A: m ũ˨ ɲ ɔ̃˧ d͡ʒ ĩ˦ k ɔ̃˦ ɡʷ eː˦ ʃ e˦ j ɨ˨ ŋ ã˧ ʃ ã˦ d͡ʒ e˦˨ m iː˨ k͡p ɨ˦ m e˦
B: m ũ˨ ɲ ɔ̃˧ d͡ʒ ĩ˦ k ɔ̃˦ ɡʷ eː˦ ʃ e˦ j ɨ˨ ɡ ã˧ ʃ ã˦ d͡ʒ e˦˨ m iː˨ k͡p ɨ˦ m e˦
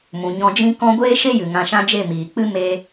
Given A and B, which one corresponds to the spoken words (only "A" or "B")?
A